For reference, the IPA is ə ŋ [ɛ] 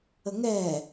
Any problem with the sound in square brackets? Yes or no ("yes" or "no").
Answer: no